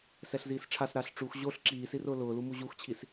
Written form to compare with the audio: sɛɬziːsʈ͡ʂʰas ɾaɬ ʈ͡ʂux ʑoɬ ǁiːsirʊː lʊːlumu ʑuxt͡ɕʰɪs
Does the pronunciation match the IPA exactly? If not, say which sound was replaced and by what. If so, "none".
ɪ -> i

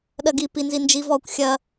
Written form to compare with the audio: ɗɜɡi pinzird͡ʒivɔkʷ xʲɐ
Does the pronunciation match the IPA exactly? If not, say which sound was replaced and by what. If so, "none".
r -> n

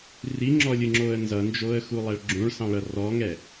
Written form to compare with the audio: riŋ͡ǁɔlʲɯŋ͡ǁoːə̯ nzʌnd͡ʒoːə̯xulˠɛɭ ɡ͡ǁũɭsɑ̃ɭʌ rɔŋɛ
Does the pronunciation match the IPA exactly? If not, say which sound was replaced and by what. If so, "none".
none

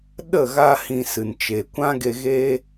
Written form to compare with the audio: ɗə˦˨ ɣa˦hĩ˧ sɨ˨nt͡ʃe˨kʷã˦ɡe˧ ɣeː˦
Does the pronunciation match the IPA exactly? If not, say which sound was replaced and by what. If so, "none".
none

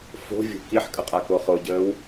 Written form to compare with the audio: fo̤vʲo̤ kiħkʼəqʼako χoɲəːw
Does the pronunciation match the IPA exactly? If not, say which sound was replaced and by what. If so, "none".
ɲ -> ɟ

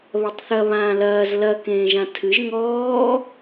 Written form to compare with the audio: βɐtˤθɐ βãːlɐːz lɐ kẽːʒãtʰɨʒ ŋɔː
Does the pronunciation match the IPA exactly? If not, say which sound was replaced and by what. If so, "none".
none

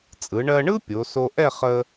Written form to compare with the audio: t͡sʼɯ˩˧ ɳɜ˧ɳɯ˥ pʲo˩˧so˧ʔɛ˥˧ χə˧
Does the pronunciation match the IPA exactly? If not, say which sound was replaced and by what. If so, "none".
none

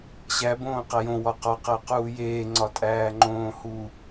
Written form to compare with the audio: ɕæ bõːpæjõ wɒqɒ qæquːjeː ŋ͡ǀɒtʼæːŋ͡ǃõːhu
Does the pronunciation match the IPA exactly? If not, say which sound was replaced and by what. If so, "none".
p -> q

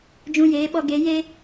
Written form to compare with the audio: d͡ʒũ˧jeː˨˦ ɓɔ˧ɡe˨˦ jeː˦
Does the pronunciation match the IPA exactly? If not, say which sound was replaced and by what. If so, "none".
none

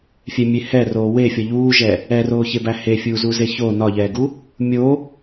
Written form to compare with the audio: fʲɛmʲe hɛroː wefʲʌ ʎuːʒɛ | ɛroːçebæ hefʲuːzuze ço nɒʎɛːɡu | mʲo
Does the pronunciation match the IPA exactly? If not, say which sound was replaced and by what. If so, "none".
none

